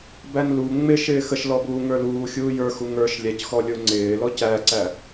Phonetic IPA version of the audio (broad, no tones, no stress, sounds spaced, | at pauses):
b æ n l u ŋ͡m ɪ ʃ ɪː x ə ʃ l ɔ b uː ŋ ə˞ l uː xʲ uː j ə˞ x u ŋ ə˞ ʃ lʲ æ c x ɔ lʲ ʊ ŋ͡ǀ ɪː l ɔ c æ ǀ æ